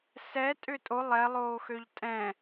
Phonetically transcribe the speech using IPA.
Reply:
s ɛ tʼ ʏ tʼ o lˠ ɛ lˠ oː x ø ʎ tʼ ɛ̃

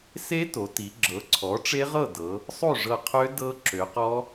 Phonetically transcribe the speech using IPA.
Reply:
s e˦˥ t o˩˧ t i˩˧ ɡ͡ǁ ɤ˩˥ ǀʰ ɔ˩˥ ʈ͡ʂ e˦˥ ʁ ɤ˥˨ d ɤ˩˧ | sˤ o˥˨ ʐ ɤ˧˩ qʰ ø˦˥ d ɤ˦˥ ǁ ø˩˧ q ɔ˦˥

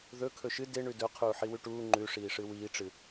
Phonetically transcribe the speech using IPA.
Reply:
ð ɵ kʰ ɵ ʃ ɨ d e ɳ ʉ d ɵ qʰ uː ħ i w ʉ ʈ uː ŋ͡ǃ ʉ ʂ iː ʂ ɨ w iː ʈ͡ʂ ɨ

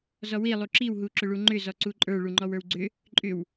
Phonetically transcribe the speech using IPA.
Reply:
z ɔ w i lˠ u ǁ i w ɦ u ǁ ʏ ɭ u ŋ͡ǃ ʏ z ɔ ǀ u ǃʼ ə˞ ɭ u ŋ͡ǃ ɔ w ə˞ w ɡ͡ǀ ʏ | ǃʼ ʏ w

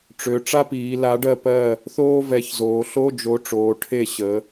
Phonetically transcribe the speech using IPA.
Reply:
ʈ͡ʂ ø˩˧ ʈ͡ʂ a˥ p iː˩˧ l a˨˥ ɖ ɜ˦˨ p ɜ˦˨ | θ oː˥ v ɛ˨˥ ç z oː˩˧ ɬ o˧˥˧ d͡ʒ o˨˥ ʈ͡ʂ oː˩˧ ʈʰ e˦˨ ɕ ə˩˧

